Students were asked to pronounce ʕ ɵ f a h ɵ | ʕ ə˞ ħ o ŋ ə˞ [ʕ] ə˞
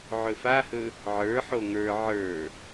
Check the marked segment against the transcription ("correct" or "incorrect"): correct